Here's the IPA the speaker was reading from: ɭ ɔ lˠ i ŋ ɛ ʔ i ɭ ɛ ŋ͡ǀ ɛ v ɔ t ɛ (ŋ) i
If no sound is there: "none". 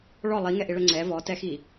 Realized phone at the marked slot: x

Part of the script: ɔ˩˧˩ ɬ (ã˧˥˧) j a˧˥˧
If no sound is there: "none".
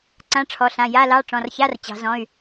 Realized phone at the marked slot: ã˩˧˩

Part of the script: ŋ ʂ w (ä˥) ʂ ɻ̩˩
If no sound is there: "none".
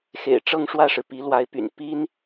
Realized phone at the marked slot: ä˥˩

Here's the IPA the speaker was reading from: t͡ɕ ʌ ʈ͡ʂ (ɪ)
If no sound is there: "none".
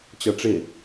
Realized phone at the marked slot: ɪ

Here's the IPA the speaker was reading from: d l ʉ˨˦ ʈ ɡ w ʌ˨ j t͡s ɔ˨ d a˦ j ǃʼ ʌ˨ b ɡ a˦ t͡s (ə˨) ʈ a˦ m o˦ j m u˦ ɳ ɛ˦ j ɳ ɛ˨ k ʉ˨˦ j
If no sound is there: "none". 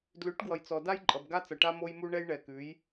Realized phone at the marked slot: ʌ˨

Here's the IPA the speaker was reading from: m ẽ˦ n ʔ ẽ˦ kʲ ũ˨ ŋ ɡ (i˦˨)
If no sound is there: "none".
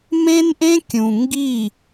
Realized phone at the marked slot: i˦˨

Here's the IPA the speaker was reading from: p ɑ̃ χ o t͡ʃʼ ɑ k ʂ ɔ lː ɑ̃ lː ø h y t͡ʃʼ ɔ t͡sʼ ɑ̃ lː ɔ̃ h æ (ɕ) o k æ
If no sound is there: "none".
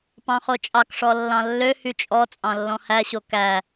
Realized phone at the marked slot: ɕ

